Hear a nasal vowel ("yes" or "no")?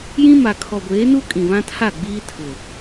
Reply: yes